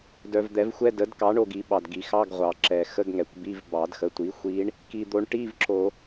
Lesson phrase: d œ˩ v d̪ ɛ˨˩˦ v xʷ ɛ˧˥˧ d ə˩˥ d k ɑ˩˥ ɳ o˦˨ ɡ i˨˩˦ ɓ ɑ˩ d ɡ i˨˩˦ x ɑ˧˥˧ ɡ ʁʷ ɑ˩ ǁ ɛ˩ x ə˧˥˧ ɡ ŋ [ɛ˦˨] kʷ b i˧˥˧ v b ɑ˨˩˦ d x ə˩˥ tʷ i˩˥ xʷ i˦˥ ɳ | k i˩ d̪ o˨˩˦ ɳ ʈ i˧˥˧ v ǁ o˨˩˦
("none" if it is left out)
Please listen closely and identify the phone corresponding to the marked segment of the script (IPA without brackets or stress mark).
ɛ˩